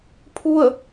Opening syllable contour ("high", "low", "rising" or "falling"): falling